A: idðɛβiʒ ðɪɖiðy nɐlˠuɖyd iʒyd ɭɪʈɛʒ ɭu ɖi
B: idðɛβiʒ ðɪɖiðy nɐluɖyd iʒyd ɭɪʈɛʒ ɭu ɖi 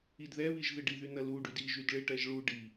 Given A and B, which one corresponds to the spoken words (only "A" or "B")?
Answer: B